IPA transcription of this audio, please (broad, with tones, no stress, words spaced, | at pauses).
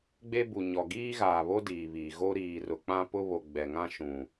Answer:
ɡ͡be˦bu˨ɲɔ˨ ɡiː˦ɣaː˨βo˦ diː˨βiː˨ ɣo˦ɾiː˨rʊ˨ k͡pã˦pʊ˦ βo˨ ɡ͡bɛ˨ŋã˦ ʃũ˨